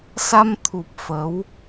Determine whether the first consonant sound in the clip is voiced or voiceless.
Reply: voiceless